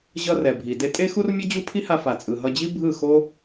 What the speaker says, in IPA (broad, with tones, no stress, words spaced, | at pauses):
ʑʌ˦rɛ˨ bʱi˨ de˧tʼe˦xu˦rmʲʌ˦ d͡ʑu˦pʰi˦ha˧ fa˨t͡sʼɯ˨ɦʌ˧d͡ʑi˦ bʱɯ˦˨xo˦